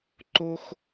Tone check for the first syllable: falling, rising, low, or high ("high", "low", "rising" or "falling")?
high